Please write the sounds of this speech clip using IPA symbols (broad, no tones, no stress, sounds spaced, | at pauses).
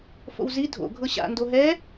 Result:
f o̰ w z i dʱ o̰ ɡʱ ɤ ɕ a̰ n d o ɦ ɛ